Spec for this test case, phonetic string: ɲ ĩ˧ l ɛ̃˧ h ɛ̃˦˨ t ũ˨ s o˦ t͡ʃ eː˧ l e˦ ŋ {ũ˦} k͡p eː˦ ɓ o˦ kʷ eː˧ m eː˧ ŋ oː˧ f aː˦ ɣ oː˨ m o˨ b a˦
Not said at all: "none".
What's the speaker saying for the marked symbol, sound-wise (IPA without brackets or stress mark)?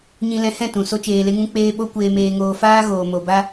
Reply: ũ˦